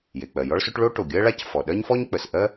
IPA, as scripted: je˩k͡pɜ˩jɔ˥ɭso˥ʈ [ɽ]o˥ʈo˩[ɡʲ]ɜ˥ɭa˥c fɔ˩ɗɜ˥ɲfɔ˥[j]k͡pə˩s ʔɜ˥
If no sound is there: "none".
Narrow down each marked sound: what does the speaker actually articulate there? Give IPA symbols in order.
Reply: ɭ, ɡʲ, ɲ

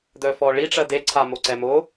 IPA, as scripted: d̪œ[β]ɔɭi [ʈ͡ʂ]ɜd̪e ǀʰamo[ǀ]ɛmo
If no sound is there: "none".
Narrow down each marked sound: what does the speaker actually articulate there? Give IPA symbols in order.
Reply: f, ʈ͡ʂ, ǀ

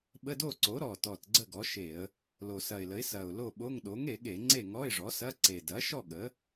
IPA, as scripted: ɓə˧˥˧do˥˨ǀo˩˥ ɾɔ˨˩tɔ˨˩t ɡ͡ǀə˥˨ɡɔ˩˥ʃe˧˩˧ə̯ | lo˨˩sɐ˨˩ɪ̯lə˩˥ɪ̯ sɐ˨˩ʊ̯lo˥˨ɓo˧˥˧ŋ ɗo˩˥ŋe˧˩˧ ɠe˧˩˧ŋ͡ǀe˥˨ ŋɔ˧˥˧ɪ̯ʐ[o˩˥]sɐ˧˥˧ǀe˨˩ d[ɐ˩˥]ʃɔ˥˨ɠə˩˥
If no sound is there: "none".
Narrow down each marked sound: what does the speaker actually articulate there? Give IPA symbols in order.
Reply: ɔ˩˥, ɐ˩˥

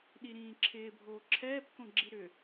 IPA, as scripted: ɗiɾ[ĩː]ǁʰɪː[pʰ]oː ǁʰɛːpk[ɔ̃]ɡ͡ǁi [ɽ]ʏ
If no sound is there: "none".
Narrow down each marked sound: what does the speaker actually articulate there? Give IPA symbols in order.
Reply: ĩː, bʱ, õ, ɾ

